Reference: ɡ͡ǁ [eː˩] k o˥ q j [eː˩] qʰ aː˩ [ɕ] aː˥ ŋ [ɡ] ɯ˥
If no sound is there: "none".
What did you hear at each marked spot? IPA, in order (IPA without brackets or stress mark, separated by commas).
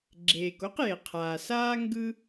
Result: eː˩, e˩, s, ɡ